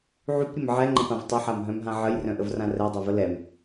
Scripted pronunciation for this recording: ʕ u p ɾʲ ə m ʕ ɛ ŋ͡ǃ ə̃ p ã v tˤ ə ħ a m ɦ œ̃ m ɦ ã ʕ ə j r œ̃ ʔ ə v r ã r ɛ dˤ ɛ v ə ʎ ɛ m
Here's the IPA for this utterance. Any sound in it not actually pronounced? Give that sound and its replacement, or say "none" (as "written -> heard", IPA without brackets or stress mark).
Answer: ʎ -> l